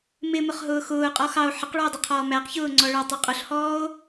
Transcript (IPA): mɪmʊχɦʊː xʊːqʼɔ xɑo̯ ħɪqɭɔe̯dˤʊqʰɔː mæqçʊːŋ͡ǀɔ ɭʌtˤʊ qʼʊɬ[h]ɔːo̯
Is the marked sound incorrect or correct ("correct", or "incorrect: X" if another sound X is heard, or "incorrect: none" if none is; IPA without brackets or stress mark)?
correct